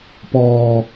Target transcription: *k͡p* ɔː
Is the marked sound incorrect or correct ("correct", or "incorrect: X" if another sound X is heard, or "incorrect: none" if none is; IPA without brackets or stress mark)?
incorrect: p